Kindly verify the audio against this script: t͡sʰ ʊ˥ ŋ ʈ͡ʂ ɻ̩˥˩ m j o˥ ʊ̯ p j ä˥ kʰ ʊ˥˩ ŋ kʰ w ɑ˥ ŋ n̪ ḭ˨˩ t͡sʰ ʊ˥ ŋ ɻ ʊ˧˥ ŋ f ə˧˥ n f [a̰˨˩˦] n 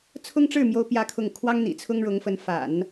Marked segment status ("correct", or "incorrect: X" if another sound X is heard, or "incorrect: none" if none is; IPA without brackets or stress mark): correct